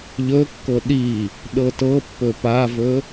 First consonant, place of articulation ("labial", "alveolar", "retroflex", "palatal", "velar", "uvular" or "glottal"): palatal